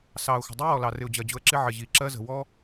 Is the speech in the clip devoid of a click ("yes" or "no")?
no